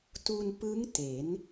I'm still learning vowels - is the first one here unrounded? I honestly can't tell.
no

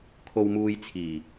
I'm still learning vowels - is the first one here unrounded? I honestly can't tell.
no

